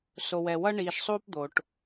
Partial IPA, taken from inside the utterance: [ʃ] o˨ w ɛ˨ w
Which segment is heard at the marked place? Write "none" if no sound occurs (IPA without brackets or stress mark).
s